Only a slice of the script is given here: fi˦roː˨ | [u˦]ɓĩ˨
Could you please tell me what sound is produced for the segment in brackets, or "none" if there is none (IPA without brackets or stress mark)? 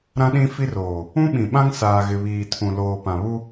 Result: ũ˦